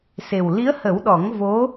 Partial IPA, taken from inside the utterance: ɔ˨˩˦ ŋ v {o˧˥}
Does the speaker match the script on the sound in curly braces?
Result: yes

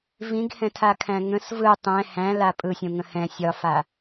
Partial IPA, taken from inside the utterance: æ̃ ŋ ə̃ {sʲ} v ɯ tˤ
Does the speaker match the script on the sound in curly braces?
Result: no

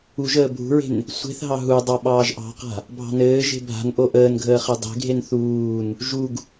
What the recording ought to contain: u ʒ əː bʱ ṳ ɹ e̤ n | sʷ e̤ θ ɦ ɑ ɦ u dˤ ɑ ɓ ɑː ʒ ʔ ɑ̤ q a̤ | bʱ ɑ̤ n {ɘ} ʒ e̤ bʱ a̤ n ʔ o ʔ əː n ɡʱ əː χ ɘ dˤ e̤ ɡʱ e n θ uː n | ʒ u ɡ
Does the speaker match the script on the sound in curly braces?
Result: no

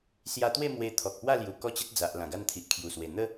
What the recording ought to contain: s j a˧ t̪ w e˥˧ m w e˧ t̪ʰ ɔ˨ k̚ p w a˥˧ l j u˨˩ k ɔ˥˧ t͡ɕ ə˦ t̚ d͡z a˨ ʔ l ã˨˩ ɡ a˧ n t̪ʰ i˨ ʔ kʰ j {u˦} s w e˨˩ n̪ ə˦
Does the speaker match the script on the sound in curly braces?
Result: no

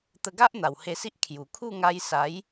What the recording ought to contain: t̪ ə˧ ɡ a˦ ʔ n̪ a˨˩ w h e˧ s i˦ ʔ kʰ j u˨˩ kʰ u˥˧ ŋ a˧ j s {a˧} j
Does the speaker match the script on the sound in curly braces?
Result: no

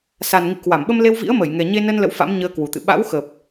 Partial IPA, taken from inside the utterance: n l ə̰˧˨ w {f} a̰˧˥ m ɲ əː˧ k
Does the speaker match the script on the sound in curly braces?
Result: yes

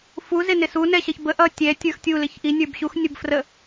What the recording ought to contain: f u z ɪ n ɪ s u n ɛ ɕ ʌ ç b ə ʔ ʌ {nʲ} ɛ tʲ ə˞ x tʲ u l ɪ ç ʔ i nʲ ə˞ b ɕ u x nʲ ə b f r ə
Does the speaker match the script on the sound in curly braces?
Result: no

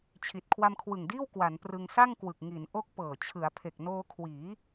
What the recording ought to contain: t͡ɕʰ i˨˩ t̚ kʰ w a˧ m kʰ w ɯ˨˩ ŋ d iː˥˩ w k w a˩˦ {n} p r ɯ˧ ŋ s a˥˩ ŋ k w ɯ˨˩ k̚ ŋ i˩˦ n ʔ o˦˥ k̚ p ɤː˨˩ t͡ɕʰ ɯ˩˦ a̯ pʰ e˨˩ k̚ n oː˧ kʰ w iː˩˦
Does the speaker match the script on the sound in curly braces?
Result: yes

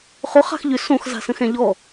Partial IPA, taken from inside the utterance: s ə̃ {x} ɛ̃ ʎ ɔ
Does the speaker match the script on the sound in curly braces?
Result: yes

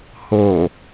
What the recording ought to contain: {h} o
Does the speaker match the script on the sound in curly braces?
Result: yes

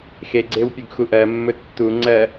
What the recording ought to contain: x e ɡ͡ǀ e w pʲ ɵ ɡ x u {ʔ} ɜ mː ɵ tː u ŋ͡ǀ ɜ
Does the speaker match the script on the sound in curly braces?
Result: yes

